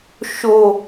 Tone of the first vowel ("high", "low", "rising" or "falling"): low